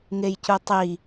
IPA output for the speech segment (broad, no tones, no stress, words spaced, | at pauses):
ŋejcutˤi